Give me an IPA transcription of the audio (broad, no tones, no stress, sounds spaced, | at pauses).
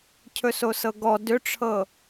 cʰ ɵ s o s ɤ ɡ ɔ d ʏ ʈ͡ʂʰ ɤ